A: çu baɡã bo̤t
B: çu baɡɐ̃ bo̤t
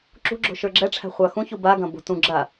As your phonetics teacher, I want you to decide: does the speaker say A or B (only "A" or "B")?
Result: B